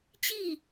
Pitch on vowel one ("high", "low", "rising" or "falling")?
falling